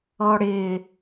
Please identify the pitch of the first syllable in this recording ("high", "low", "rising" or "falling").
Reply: high